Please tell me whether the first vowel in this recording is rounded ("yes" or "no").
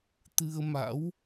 no